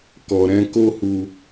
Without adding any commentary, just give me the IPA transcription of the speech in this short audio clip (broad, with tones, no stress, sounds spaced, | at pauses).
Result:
k ɔ˨ ɾ ɛ̃˧ k o˦ h u˧